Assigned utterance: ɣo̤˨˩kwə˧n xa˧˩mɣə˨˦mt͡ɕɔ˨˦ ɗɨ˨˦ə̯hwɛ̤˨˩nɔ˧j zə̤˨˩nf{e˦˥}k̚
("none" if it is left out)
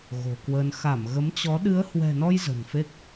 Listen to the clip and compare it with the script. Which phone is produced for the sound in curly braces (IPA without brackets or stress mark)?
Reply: e˦˥